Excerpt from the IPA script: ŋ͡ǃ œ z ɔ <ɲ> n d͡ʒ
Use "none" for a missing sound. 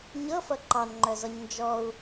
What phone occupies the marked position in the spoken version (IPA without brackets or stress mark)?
ɲ